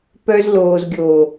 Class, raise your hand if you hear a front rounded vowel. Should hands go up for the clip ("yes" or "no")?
yes